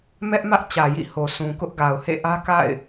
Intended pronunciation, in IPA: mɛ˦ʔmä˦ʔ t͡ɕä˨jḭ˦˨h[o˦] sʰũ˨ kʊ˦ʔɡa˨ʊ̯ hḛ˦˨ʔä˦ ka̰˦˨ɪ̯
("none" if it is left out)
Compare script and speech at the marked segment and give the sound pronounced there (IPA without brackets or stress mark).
o˨